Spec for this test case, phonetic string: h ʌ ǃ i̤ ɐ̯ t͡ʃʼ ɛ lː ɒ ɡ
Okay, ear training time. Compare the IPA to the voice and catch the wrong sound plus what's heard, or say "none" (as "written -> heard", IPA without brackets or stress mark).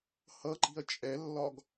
none